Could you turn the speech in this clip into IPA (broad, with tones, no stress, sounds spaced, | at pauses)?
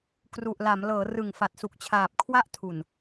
k r u˨˩ ʔ l a˩˦ m l ɤː˩˦ r ɯ˨˩ ŋ f a˨˩ t̚ s u˨˩ k̚ t͡ɕʰ aː˨˩ p̚ kʰ w a˦˥ ʔ tʰ u˨˩ n